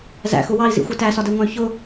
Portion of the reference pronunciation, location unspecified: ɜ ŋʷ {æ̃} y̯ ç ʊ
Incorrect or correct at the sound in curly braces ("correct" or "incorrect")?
correct